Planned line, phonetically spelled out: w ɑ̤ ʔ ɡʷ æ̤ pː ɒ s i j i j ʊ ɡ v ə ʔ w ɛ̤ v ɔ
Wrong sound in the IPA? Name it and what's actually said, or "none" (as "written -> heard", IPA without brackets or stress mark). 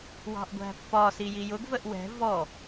none